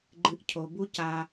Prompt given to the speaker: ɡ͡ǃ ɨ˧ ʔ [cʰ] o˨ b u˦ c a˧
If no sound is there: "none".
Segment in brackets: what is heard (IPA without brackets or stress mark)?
cʰ